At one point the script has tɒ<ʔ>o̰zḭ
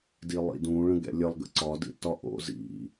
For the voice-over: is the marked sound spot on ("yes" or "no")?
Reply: yes